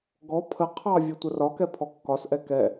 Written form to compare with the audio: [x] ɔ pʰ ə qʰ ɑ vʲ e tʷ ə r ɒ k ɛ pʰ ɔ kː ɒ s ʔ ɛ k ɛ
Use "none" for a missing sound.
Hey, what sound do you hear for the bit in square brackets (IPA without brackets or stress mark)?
ɡ